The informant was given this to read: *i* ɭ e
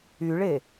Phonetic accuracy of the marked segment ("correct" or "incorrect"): incorrect